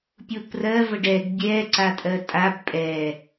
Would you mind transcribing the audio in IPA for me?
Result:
pʲ u p r ɜ v ə ɖ ɛ ɡ bʲ ɛ ǀ a tʼ ɜ tʼ a b pʼ ɛ

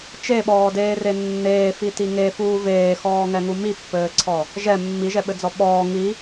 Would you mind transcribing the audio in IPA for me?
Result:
t͡ʃ e ɓ ɔː d eː r e nː eː f i t i ŋ e f uː v eː x ɔː ŋ ɛ ŋ u m i pː ɘː ǀʰ ɔ | ʒ ɛ mː i ʒ ɛ ɓ ɘ d͡z ɔ ɓ ɔː ŋ i

